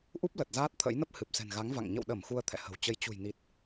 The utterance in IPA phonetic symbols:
ʔ u˦˥ p̚ l ə˨˩ t̚ z aː˦˥ t̚ t̪ʰ ə̰˧˥ j n ə˦˥ p̚ h ɨ˨˩ p̚ s ɛ̤˨˩ n ɣ a˨˦ ŋ v a̰˧˨ ŋ ɲ ə̰˧˨ w ɗ ə˧˩ m x u˧ ə̯ t̪ʰ ɛ̰˧˨ h ə̤˨˩ w t͡ɕ ə˧ j t͡ɕ ṳ˨˩ j n i˨˩ t̚

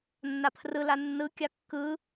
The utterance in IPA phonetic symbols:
nː a pʰ r ɯ l a nː ɯ kʲ a kː ɯ

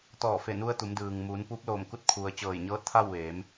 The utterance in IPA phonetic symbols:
t̪ ɔː˧˩ f e˧˩ n u˧ ə̯ t̪ u˩˧ m d ɯː˩ ŋ m uː˩˧ n p u˧˥ p̚ l oː˧˩ m k u˥˨ t̚ kʰ u˩ ə̯ t͡ɕ ɤː˧˩ j ɲ ɤː˧˥ t̚ t̪ʰ a˥˨ w ʋ eː˩˧ m

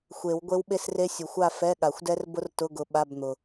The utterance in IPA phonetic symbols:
xʷ e˨˩˦ w ɡʷ e˦˥ w ɓ e˥˧ s r e˦˥ sʲ ʊ˨ xʷ a˥˧ f ɛ˧˥˧ ɠ a˨˩˦ xʷ d ɛ˦˥ r b ʊ˦˥ r t ʊ˧˥˧ ɡ ʊ˨˥ ɓ a˧˥˧ b n̪ ʊ˨

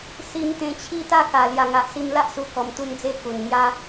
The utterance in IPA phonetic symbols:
s i˧ m t̪ ẽ˧ t͡ɕʰ i˦ t̪ a˥˧ k a˨˩ l j a˨˩ ŋ a˨ ʔ s i˧ m l a˦ ʔ s u˧ k ɔ˧ m t̪ u˦ n d͡z e˥˧ k u˨˩ n ŋ j a˦

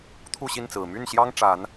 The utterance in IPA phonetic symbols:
t̪ʰ u˥˨ ɕ i˥˨ n t͡s ɹ̩˨˩ m y˥˨ n ɕ j ɑ˦ ŋ ʈ͡ʂ a˨˦ n

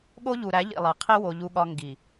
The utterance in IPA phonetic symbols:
ɠ o˦ ʎ u˨ ɾ æ˨˦ ʎ ḭ˨ lˠ e˨ qʰ i˦ w o˨ ʎ u˦ ɠ ɒ˦ ŋ ɡ i˨

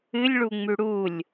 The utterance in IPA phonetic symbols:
ɨ lʲ ɭ u ŋ͡m ʉ ɽ u lʲ

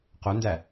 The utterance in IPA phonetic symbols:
q o n d æ

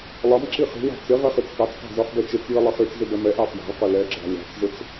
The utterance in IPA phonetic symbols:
lˠ ʌ m ǁ i χ i̤ w ɑ̤ t͡s ɪ ʁ ɛ χ i t͡s k ɑ t͡s q ɑ̤ z ɒ χ b ɛ t͡ʃ ɪ t͡s j i lˠ ɪ χ i t͡s z ɪ b ɛ m ɛ ʔ ɑ f j ɑ̤ ɭ q ʊ l ɛ ɡ͡ǁ ɑ̤ lʲ ɑ̤ t͡s z ʊ t͡s

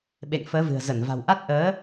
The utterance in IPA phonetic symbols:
ɓ ḛ˧˨ ŋ f əː˨˦ v ɨ̤˨˩ ə̯ z ə˧˩ n v a̤˨˩ w ʔ a˦˥ t̚ ʔ əː˨˦

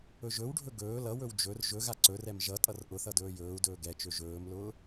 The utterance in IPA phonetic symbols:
ɵ ʒ ɵ w ɖʱ ɵ ɡ ɵː l ʌ w ɵ w d͡ʒ ɵ r ʒ ɵ ɣ a ǀ ɵ r ɛ m ʒ ʌ tʼ ʌ r ʔ ʊ θ ʌ d ɵː j ɵː u̯ d ɵː ɡ ɛ t͡ʃ ø ʒ ɵː m l ʊː

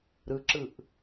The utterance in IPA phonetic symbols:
ɾ ɯ ǁ ɯ ʔ

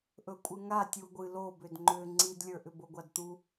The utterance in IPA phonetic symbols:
ʔ ɵ kʷʼ ɨ ŋ a tʲ u ɡʷ ɨ l o b ʏ d ŋ͡ǃ ʏ ŋ͡ǀ i d lʲ ə˞ ʔ ʏ b o ɡʷ a d t̪ u

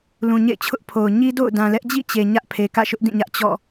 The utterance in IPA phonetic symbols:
l ũ˨ ɲ ḛ˦˨ ɪ̯ t͡ɕʰ ʊ˦ ʔ pʰ o˨ ʊ̯ ɲ i˦ d o̰˦˨ ʊ̯ d ã˨ l ɛ˦ ʔ d͡ʑ ḭ˦˨ t͡ɕ e˨ ɲ ä˦ ʔ pʰ e˨ k ä̰˦˨ ʃ ʊ˦ ʔ d ĩ˦˨ ɲ ä˦ ʔ t͡ɕ ɔ̰˦˨

